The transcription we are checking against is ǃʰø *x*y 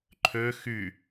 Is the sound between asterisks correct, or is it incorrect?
correct